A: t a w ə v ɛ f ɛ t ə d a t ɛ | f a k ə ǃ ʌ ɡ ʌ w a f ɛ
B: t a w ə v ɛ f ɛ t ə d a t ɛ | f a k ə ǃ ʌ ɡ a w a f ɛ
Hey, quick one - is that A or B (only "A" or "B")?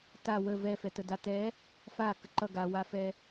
B